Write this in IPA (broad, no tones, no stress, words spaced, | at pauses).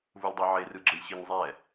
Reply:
vulʲdˤoʕer ɯɡ͡ǁɯlʲɕiɲzˤɛ